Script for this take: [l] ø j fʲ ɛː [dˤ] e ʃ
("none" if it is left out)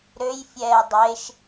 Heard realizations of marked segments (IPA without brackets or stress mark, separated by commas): ɾ, dˤ